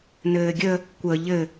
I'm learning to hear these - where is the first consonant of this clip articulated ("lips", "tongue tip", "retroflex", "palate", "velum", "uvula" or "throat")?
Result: tongue tip